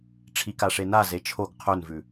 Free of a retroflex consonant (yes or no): no